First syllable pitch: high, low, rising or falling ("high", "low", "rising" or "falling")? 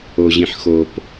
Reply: low